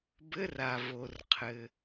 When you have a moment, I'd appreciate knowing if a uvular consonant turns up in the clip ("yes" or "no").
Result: yes